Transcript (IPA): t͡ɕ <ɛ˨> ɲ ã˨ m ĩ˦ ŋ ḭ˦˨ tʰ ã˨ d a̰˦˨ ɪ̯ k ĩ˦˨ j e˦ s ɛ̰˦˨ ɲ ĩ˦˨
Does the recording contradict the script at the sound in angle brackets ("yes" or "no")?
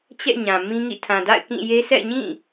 yes